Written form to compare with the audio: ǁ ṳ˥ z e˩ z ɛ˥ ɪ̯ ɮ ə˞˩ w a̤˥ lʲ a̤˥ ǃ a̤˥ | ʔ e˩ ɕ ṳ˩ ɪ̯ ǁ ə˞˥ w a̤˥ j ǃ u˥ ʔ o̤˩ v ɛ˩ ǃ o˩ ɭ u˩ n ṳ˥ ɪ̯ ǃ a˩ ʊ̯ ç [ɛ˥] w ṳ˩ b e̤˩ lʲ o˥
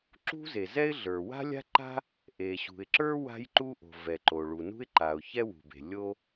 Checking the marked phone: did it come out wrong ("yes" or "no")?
no